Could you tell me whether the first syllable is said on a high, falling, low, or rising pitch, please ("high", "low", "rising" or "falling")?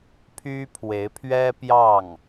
high